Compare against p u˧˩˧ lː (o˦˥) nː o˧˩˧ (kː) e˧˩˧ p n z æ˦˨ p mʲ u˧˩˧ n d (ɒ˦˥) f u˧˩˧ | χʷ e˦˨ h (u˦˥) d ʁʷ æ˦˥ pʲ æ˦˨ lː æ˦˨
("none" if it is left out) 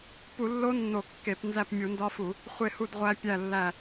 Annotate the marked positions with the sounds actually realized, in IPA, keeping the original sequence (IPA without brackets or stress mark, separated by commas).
o˦˥, kː, ɒ˦˥, u˦˨